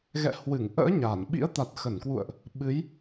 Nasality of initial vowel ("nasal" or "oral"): oral